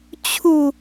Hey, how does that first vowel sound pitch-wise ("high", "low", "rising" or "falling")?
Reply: falling